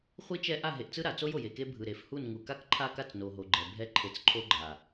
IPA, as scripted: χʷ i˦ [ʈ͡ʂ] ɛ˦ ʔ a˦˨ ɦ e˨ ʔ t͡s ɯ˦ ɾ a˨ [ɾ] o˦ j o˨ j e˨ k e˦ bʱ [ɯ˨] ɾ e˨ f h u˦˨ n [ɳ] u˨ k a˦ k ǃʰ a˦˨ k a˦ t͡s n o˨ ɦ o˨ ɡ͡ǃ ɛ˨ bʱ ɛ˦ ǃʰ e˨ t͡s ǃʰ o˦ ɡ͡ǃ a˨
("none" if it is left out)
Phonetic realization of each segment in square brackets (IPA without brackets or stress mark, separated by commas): t͡ʃ, t͡s, ɯ˨, ŋ